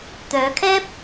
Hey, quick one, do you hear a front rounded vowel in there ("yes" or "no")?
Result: yes